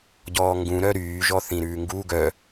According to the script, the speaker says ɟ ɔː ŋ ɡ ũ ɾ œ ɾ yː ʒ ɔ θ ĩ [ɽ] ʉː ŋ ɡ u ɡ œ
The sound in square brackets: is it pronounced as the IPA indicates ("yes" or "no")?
no